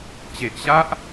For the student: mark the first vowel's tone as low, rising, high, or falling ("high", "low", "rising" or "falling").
low